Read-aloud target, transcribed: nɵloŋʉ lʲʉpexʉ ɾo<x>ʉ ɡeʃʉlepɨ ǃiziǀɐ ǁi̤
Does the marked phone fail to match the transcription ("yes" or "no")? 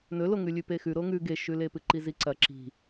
yes